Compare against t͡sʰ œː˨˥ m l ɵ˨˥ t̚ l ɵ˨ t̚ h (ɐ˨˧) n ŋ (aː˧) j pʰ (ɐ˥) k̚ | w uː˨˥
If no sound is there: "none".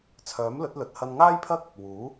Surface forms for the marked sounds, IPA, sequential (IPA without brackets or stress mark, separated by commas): ɐ˧, aː˥, ɐ˥